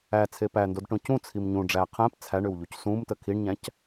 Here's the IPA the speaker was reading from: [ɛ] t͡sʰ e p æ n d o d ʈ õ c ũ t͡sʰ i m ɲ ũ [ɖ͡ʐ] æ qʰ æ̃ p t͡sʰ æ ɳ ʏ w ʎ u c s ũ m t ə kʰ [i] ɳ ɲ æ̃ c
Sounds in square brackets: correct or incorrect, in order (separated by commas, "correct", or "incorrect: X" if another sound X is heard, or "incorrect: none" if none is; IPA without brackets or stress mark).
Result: incorrect: æ, correct, correct